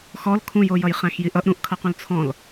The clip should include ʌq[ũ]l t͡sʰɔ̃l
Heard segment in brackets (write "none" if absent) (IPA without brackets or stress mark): ũ